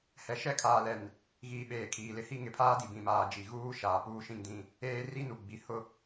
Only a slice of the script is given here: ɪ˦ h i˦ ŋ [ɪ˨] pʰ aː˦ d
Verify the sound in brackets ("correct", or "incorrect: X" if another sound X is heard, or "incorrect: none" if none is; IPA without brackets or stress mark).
correct